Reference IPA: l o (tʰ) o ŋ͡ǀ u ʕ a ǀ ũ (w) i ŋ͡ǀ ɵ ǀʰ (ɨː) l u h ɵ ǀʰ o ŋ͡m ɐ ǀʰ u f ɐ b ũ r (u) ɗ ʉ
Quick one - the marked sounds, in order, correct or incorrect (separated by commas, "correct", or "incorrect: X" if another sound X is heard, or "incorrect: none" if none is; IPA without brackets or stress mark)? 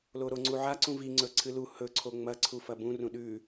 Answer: incorrect: ɾ, incorrect: v, incorrect: ɨ, incorrect: ũ